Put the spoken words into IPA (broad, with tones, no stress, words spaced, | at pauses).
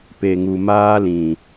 pe˨ŋu˨maː˦lĩ˨